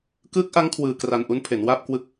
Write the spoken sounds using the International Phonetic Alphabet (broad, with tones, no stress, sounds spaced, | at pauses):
k ɯː˦˥ k̚ ʔ a˦˥ ŋ kʰ w ɯː˧ k r a˧ n ʔ u˦˥ n pʰ e˩˦ n w aː˥˩ p̚ k w ɯ˥˩ k̚